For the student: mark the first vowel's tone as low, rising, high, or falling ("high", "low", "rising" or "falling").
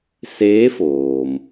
rising